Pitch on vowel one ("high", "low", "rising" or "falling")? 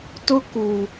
high